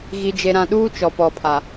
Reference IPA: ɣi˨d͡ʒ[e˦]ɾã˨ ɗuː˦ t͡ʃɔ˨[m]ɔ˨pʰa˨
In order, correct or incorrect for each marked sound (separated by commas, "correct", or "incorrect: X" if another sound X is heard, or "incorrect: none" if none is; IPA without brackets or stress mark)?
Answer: incorrect: e˨, incorrect: p